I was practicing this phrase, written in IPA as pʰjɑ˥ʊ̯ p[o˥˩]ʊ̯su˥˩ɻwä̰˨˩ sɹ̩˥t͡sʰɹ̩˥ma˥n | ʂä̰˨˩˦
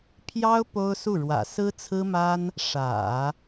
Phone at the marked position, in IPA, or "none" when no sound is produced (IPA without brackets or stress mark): o˥